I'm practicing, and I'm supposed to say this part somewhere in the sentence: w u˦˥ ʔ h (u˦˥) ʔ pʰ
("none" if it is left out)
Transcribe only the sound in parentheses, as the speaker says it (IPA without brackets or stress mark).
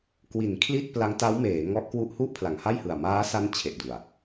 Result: u˥˩